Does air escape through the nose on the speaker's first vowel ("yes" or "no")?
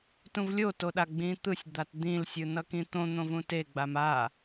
yes